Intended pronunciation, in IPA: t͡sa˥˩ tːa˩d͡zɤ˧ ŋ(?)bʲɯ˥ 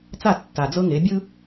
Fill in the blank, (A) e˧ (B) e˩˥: B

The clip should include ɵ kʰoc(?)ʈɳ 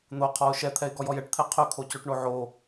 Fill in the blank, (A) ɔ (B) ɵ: B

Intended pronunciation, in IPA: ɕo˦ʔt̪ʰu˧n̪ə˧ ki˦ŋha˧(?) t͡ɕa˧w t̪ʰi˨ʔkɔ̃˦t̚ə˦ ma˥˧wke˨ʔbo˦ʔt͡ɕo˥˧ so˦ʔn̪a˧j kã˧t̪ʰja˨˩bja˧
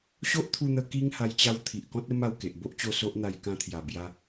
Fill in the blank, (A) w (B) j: B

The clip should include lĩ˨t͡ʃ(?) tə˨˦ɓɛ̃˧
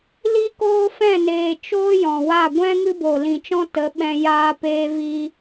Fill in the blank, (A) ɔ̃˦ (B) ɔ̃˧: A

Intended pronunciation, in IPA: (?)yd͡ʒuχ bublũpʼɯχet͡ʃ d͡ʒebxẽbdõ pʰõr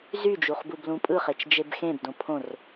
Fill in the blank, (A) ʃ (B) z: B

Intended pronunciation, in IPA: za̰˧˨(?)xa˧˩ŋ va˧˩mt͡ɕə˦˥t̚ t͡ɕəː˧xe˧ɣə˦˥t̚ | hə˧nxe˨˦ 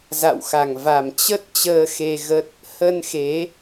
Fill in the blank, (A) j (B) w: B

